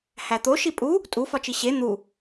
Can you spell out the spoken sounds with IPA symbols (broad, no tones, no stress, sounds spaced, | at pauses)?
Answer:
h æ t̪ o ʃ i pʼ u | tʼ u f ɒ t͡ʃ i ɕ e n̪ u